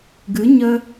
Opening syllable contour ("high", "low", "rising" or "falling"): rising